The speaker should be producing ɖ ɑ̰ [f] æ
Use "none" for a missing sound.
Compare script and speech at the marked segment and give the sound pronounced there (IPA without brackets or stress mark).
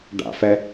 f